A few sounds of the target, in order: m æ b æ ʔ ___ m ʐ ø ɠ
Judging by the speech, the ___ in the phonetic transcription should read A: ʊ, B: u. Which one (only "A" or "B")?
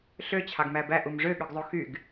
B